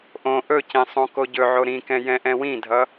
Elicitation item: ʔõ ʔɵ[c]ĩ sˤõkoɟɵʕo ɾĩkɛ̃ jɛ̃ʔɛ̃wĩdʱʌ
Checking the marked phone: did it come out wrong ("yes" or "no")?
no